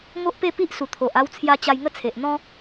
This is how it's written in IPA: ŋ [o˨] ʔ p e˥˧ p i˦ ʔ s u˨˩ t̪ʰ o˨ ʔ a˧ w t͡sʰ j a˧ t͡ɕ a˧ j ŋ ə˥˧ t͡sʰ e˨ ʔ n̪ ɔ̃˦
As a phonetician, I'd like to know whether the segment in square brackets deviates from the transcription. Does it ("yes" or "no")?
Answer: yes